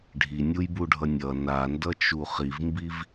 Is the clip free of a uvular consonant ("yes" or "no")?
no